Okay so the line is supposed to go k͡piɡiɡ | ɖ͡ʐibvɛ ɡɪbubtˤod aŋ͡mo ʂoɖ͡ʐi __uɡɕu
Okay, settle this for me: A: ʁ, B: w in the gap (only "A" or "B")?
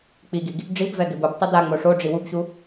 B